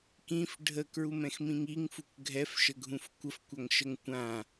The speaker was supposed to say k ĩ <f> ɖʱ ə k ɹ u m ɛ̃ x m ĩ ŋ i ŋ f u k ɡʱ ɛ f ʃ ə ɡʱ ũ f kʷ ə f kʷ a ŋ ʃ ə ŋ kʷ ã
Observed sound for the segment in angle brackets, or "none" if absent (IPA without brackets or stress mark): f